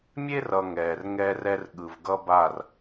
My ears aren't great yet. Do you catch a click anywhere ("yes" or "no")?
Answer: no